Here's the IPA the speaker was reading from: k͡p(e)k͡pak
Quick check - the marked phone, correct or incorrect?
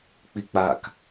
incorrect